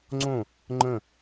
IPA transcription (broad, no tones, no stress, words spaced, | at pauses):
ŋ͡ǀõ | ŋ͡ǃə̃